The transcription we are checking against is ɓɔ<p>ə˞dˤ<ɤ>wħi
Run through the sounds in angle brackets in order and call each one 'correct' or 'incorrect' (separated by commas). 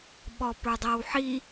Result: correct, correct